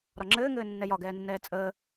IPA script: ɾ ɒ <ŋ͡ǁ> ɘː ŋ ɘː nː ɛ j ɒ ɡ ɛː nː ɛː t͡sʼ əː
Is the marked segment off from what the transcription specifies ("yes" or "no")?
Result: no